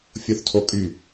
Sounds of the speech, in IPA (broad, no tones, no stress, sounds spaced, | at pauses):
fʲ o θ tʰ o kʼ y